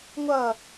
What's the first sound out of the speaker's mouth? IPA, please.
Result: ŋʷ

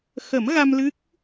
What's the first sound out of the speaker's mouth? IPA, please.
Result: x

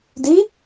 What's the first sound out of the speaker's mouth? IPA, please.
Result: d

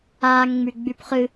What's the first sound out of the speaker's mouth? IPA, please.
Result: aː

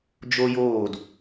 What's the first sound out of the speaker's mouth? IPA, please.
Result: d͡ʒ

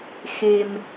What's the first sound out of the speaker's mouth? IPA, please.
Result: x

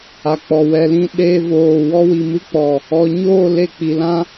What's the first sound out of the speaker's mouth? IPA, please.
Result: a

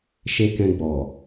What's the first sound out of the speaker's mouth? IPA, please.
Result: ʃ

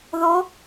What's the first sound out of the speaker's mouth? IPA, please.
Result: ð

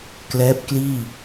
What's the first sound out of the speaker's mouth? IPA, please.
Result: k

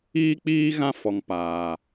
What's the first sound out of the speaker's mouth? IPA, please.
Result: iː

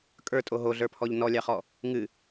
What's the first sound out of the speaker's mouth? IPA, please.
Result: kʼ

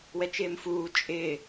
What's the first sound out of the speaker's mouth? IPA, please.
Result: w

